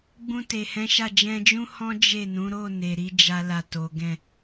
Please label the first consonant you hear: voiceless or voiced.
voiced